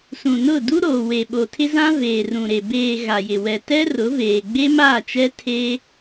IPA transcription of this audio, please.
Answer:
s ũ˨ n ʊ˦˨ d u˦ ɾ oː˨ w e˨ ɓ o˨ tʰ ɪ˦ z ã˦ v eː˨ r ũ˨ ɾ e˨ b eː˨ ɣ a˨ j ɪ˨ w ɛ˨ t ɛ˦ r ʊ˨˦ v eː˨ ɡ͡b e˦ m aː˦˨ t͡ʃ ɛ˦ tʰ e˦

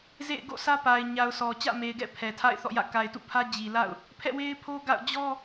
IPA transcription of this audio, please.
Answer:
z ḛ˦˨ ɪ̯ ɡ o̰˦˨ s ä˦ p a˨ ɪ̯ ɲ a˨ ʊ̯ s ɔ˨ t͡ɕ ä̰˦˨ m e˨ ɪ̯ ɡ ɛ̰˦˨ pʰ ɛ˨ tʰ a̰˦˨ ɪ̯ θ ɔ̰˦˨ j ä̰˦˨ k a˨ ɪ̯ t ṵ˦˨ pʰ ä˦ d͡ʑ i˨ l a̰˦˨ ʊ̯ | pʰ ɛ̰˦˨ w e˦ ɪ̯ pʰ o˦ ɡ a̰˦˨ ʊ̯ d͡ʑ ɔ˦

